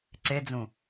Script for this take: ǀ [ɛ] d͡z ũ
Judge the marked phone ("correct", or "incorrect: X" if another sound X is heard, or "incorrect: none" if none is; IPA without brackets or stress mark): incorrect: e